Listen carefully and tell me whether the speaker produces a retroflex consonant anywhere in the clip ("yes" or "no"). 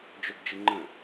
no